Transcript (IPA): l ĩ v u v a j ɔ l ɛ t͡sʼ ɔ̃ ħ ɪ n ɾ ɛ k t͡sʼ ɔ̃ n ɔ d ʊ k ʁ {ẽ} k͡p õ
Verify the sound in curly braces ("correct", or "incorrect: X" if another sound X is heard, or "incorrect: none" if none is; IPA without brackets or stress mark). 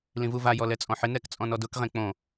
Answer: correct